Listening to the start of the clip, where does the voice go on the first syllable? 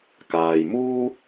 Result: low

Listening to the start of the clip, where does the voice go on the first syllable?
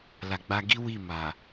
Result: low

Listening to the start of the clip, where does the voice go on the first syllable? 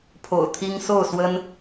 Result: low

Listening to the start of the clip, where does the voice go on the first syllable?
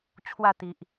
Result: falling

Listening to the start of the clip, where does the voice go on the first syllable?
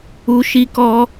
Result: high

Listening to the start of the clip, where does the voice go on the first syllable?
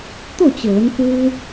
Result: falling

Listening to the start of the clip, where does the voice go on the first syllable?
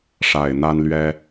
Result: low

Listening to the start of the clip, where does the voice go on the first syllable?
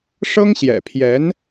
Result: high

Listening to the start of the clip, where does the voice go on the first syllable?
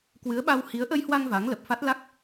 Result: rising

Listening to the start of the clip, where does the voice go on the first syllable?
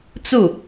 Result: falling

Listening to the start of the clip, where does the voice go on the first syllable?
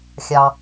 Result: low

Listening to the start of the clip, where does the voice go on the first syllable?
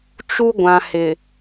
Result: high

